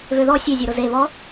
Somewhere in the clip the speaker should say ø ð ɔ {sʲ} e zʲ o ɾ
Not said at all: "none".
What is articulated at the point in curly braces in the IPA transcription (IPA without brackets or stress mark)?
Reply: sʲ